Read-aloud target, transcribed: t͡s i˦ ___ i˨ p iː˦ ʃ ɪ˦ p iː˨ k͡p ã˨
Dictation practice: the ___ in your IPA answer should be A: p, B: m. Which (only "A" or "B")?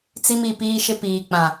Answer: B